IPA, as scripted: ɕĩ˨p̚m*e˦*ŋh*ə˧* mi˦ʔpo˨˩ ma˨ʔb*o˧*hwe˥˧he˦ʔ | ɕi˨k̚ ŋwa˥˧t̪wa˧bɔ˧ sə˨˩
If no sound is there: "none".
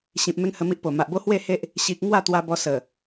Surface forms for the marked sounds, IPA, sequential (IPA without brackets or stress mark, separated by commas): e˦, ə˧, o˦